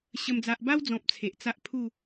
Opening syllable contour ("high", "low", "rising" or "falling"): high